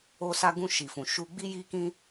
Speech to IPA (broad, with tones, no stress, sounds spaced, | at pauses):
o˧ s a˧ ɡ ũ˧ ʃ i˨ f ũ˨ ʃ u˧ ɡ͡b i˧ j i˧ k ĩ˧